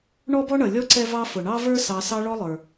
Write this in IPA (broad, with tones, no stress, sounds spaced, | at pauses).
ɳ ɔ˥ b ɔ˥ ɳ ʌ˩ lʲ ɔ˥ ǀ ɛ˦ v ɑ˦ f ʊ˩ ɳ ɑ˦ v ə˞˦ s ɑ˨ s ɑ˦ ɭ ɔ˦ lˠ ə˞˩